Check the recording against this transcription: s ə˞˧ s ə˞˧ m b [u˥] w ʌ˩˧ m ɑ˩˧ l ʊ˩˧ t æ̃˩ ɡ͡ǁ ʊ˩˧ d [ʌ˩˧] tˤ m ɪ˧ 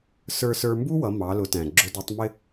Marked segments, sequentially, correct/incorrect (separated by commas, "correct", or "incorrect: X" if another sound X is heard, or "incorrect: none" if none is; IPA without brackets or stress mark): correct, correct